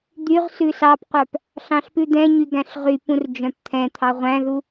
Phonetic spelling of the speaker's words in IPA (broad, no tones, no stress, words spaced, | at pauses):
d̪yʁ sʉsɑpqʷœp | ɬɑ̃ɬpʉd̪ɛ̃ɲy ɡæ̃ɬʁypũr d͡ʒœ̃pt̪ʰɛ̃t̪ʰɑ ʁʷæ̃ðu